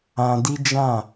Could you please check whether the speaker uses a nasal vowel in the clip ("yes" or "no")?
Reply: yes